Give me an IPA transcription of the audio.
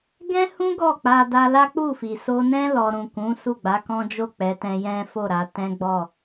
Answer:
ɡ ɛ̃˦ h ũ˦ ɡ ɔ˦˨ k͡p a˧ d a˧ l a˦ k͡p u˦˨ f i˨ s o˧ n ɛ̃˦ l ɔ˦ ɾ ũ˦˨ k ũ˨˦ s u˦˨ ɡ͡b a˨˦ k ɔ̃˦ d͡ʒ o˦˨ k͡p ɛ˨˦ t ɛ̃˧ j ɛ̃˦ f o˦˨ ɾ a˧ t ɛ̃˦ ɡ͡b ɔ˦˨

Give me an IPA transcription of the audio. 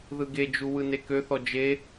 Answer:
ð ɯ ɡ e d͡ʒ u w ɯ n e k ø θ ɔ d͡ʒ e

